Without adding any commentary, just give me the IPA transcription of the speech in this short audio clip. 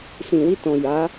s ĩ˨ w i˧ t ɔ̃˨ j a˨˦

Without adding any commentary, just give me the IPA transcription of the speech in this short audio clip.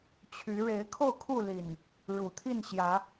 t͡ɕʰ y˨˦ ɻ e˨˦ ɪ̯ kʰ o˥˨ ʊ̯ kʰ u˥˨ l i˨˩ n | ɻ u˨˩ t̪ʰ i˥˨ n ɕ j ä˨˦

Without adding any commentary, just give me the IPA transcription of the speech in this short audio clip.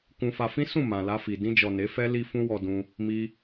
k ũ˧ f a˧ f ĩ˦ s ũ˦˨ m ã˨ l a˧ f i˨ d ĩ˧ d͡ʒ ɔ˨ n e˨˦ f ɛ˦ l i˧ f ũ˧ w ɔ˨ d ũ˧ | m i˧

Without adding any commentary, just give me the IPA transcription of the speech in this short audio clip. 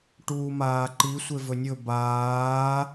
ʈ uː m aː ǃ i sʷ e v ɵ nʲ ɵ b aː

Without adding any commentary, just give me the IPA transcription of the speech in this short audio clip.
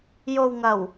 j o˨ w ŋ ɐ˨˩ w

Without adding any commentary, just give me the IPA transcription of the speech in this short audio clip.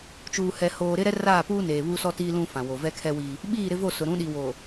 t͡ʃ uː˨ h ɛ˨ h oː˨ ɾ ɪ˦ ɾ ɛ˦ r aː˦˨ p uː˦ n eː˨ β u˦ s ɔ˦ t iː˦ l ũ˦ f ã˨ w o˨ v ɛ˦ kʰ ɛ˦ w i˦ | ɓ iː˦˨ ɾ ɪ˦ v o˦˨ s ʊ˨ ɾ ũ˨˦ ɗ i˨ w o˨

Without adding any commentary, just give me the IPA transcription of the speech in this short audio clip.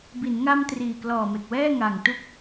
b i˩˦ n ŋ a˧ m t r iː˨˩ k l ɔː˨˩ m e˨˩ k̚ w ɛː˥˩ ŋ a˨˩ ŋ t u˥˩ k̚

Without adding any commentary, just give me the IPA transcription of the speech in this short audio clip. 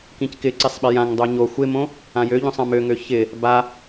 k ĩ c k ɪ ǀ i sˤ ɓ ɪ j ã ŋ dˤ o ɲ o xʷ ɪ m õ | ã j ø ʎ õ sˤ ã m ø ŋ ø ç ɪ | b a

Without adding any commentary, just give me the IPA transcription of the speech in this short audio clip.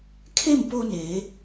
kʰ e˥˨ m p o˧ n eː˩˧

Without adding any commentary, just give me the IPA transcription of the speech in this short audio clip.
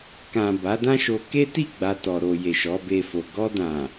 k ã˨ b a˨˦ d ã˦ ʃ o˧ k e˦ t i˦˨ ɡ͡b a˨ t ɔ˨ ɾ o˨ j e˨ ʃ ɔ˨˦ b e˧ f o˨ ɡ ɔ˧ d ã˨

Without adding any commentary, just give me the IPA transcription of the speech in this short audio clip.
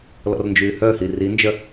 l ɔ̰ r n d͡ʒ yː h œ h i r i n d͡ʒ œ

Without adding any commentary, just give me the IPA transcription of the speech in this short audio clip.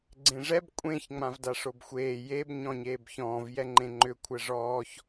ɡ͡ǀ ẽ ʐ ɛ b kʷʼ ẽ ç ŋ͡m ã v d a ʂ o b xʷ eː j e b ɲ ɔ̃ ɲ eː b ç ɔ̃ː v j ɛ ŋ͡ǃ ẽ ŋ͡ǃ ʏ kʷʰ ɛ ʐ ɔː ç

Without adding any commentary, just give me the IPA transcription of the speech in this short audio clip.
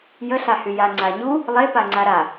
j ə ɬ a h y j a ŋ͡ǀ a ɲ u | lˠ e p a ŋ͡ǀ a ɾ a

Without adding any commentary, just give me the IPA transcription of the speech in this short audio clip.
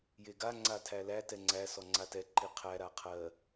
j e ɡ a ŋ͡ǀ a tʰ æ l æ t ɛ ŋ͡ǀ æ s ɔ ŋ͡ǀ a t ɛ ǃ i qʰ æ ɾ a qʰ ɜ

